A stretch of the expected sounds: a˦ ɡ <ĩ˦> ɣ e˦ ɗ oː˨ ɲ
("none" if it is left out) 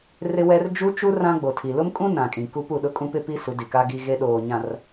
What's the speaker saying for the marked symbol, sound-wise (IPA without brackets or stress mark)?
i˦